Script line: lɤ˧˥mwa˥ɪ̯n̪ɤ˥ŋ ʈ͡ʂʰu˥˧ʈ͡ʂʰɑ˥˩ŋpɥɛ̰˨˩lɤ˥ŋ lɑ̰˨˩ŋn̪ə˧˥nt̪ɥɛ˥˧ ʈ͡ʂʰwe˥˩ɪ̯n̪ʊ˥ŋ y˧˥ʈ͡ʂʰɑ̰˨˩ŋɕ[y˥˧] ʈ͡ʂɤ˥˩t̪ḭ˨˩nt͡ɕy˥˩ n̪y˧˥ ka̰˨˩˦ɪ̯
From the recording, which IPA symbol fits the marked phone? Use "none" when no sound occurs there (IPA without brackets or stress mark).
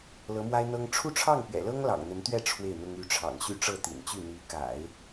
y˥˧